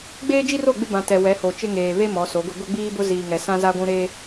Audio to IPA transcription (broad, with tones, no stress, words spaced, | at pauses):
ɡ͡beː˦d͡ʒi˦ro˦˨ ɡ͡bɪ˦bã˨ tɛ˨ wɛ˨˦ho˨t͡ʃɪ˦ŋeː˨ βe˦ mɔ˨˦so˨˦ɡʊ˦ ɡʊ˦ɡ͡biː˦bʊ˦ ziː˨ŋɛ˨ sã˦za˦ɡʷũ˦ ɾe˦